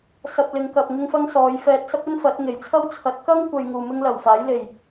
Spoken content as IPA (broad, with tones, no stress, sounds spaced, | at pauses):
s ɐ˧ p̚ l ɪ˨˧ ŋ k ɐ˨ p̚ ŋ ɪ˥ ŋ f ɐ˥ ŋ s ɔː˨˧ j f ɛː˧ t̚ s ɐ˥ p̚ ɵ˥ n f ɐ˨˥ t̚ ŋ e˨˩ j t͡sʰ ɐ˥ w t͡sʰ ɐ˨˥ t̚ k ɐ˥ ŋ kʷ ɐ˨ j ŋ uː˨ m ɪ˥ ŋ l ɐ˨˩ w f aː˨˥ j l e˨˩ j